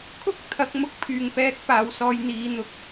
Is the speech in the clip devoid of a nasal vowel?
yes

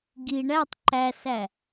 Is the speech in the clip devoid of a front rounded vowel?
yes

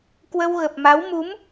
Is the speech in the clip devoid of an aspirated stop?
yes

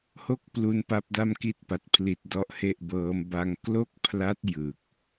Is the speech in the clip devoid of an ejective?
yes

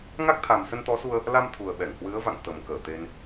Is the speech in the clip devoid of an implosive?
no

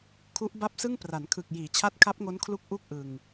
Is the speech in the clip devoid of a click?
yes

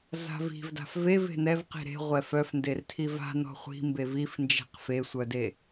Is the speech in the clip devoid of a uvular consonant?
no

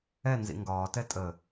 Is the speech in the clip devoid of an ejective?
no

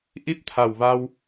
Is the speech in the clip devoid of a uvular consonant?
yes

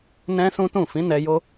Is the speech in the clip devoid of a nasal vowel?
no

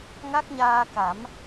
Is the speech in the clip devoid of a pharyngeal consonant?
yes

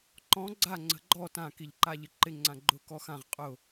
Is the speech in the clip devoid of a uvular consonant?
no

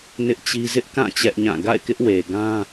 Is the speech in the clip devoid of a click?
yes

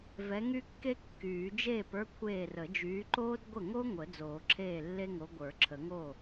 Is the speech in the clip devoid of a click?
no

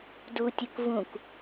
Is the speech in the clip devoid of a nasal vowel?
no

